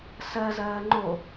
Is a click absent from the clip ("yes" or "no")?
no